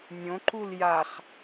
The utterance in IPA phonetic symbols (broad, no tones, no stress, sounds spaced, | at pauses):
nʲ õ ǃ u l j a χ